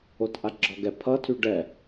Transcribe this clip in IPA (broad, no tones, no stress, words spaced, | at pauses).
otʔaɡ͡ǁɒɡɛ pʰʌtʰy ɖɛ